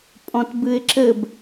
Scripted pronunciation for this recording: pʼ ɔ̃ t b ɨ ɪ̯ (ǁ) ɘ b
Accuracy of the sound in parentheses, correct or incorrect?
correct